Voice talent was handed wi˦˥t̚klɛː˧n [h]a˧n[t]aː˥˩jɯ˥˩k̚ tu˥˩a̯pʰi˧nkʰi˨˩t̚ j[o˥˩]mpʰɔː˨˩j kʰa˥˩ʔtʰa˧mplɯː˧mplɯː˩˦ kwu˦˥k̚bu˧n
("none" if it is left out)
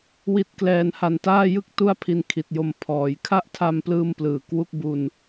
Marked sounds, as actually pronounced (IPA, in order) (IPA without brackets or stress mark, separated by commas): h, t, o˧